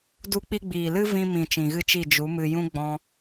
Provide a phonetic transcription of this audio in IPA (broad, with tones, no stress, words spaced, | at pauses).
du˧k͡pi˧ɡ͡biː˨lɨ˦ vĩ˧mĩ˨ t͡ʃĩ˨ɣɨ˦t͡ʃi˦˨ d͡ʒu˨˦mɨ˧jũ˦ ɡ͡bɔ̃˦